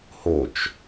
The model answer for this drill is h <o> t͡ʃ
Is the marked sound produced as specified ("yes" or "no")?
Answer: yes